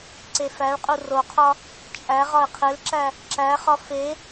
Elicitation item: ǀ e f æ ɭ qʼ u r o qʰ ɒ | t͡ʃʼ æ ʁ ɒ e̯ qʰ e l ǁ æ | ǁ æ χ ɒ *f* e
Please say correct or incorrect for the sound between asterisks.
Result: correct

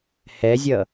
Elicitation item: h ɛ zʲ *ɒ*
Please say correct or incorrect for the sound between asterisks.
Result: incorrect: ʌ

